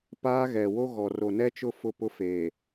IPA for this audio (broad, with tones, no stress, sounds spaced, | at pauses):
p aː˦ ɣ ɛ˨ w o˦ ɣ ɔ˨ r o˨ n ɛ˦ t͡ʃ ʊ˦˨ f ʊ˦ p ʊ˦ f eː˨